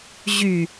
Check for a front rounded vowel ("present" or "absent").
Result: present